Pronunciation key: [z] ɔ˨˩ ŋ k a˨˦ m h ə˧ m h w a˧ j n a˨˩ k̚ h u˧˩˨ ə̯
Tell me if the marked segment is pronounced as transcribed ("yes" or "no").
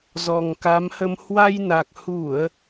yes